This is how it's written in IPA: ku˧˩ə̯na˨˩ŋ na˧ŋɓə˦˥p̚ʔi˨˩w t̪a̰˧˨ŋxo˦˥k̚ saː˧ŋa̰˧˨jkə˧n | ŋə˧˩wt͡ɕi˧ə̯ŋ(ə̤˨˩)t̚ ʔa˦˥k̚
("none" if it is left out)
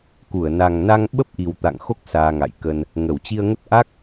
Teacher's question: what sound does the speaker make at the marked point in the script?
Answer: ə˦˥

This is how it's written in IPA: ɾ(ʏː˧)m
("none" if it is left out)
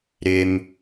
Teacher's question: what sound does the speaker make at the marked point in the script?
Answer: ʏː˧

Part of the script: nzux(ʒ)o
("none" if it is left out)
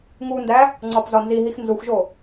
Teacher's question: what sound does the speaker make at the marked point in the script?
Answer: ʒ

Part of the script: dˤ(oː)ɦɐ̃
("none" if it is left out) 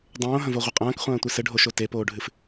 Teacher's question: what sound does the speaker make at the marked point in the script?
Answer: õː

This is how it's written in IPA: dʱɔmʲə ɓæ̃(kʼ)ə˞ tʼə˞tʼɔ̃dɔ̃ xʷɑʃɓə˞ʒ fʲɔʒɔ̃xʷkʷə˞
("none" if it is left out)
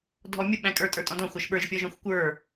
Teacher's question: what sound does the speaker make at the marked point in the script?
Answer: kʼ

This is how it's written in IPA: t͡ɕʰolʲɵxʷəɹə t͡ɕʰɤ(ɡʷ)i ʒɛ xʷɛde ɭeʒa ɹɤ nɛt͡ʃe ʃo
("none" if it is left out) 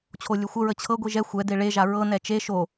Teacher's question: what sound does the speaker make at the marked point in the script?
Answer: ɡʷ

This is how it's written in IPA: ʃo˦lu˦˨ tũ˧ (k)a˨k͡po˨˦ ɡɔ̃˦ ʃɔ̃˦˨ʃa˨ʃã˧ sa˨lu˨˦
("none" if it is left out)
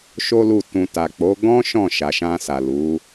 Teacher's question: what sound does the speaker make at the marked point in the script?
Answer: t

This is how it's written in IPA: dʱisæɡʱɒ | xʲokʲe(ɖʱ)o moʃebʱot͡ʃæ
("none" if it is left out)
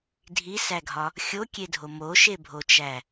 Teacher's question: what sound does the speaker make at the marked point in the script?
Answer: dʱ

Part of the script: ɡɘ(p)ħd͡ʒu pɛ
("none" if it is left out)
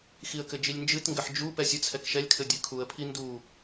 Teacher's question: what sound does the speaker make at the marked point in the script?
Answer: none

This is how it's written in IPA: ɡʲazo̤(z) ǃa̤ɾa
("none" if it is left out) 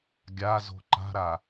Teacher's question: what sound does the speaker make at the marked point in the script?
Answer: none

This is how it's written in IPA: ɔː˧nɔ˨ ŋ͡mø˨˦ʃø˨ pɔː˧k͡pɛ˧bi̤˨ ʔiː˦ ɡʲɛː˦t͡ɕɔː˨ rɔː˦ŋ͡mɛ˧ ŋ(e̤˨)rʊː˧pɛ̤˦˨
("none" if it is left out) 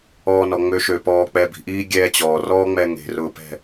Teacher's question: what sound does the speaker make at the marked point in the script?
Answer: e̤˨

